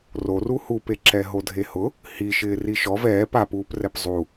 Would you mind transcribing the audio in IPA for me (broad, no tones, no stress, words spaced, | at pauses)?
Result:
roru hupeǁɛ ɦodʱehʊ | hi ʃɪːriʃɔv ɛːp apuːprɛp zˤu